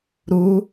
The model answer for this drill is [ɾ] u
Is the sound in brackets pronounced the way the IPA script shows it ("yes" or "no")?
yes